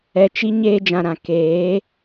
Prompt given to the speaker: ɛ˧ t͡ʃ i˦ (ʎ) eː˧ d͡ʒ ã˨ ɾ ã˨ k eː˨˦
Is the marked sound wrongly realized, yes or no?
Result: yes